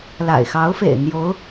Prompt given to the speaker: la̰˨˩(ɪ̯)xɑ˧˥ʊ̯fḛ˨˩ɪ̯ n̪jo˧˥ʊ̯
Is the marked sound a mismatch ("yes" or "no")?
no